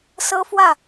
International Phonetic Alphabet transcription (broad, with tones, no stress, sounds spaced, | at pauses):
s ɤ˥ f w ä˥˩